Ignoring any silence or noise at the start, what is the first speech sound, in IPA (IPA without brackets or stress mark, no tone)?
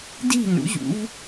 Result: d